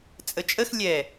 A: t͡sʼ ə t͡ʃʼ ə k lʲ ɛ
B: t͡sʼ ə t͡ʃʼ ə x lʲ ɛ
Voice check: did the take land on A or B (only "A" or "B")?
B